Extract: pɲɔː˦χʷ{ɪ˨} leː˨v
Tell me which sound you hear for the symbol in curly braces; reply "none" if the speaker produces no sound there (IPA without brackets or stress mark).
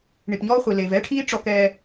i˨